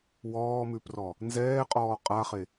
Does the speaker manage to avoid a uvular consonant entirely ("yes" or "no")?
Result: no